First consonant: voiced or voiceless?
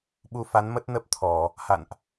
voiced